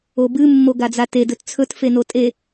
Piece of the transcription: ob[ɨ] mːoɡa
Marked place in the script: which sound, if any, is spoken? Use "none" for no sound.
ɨ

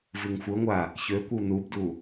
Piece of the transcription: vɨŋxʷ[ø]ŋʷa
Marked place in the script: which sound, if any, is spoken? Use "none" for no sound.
ə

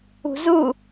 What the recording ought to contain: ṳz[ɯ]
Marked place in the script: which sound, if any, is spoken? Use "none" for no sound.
u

